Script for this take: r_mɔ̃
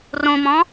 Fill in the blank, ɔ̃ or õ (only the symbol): õ